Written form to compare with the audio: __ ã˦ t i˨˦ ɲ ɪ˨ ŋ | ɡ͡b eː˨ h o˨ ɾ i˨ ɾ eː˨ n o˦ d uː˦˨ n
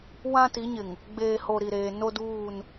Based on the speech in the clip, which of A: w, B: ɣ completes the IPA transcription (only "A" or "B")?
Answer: A